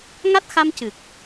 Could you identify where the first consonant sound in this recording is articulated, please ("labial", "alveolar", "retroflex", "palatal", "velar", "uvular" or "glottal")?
velar